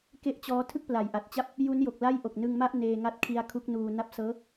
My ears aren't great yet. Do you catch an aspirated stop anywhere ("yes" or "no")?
yes